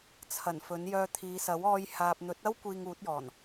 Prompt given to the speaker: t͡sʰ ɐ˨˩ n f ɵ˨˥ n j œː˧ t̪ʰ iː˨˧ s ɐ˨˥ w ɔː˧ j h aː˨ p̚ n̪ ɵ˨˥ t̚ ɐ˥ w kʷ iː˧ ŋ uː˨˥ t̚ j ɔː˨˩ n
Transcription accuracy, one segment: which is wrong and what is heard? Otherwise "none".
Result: none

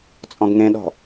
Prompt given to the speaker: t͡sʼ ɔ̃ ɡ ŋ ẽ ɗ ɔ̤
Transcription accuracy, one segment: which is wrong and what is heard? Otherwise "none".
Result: none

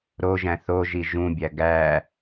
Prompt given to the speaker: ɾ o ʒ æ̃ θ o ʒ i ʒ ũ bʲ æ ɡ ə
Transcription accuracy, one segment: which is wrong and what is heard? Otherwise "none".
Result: ə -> æ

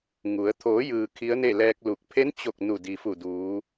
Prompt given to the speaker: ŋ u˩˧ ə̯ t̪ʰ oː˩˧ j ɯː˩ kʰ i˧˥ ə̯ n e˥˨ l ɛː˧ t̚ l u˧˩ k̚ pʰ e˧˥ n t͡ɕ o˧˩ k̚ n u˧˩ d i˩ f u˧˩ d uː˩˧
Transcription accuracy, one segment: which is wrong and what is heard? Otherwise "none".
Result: t̚ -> k̚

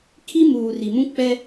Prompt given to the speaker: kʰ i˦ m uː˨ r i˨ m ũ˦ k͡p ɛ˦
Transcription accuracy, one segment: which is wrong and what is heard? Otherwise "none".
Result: none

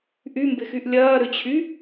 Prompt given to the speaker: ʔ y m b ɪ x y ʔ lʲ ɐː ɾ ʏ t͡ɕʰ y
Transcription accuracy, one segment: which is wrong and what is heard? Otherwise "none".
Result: none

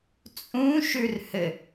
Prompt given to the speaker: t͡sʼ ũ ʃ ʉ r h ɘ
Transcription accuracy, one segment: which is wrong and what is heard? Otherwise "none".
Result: none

